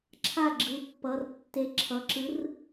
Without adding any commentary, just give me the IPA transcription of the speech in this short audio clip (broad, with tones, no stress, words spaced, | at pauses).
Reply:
ǁʰa˥˩ɡ͡ǁɯ˩˧˩pːʌ˩˧˩rtːe˨˥ ǁʰʌ˩˧˩ǁɯ˨˥r